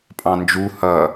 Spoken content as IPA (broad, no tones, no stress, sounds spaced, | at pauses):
pʼ ɑ̃ n d͡ʒ u h ʌ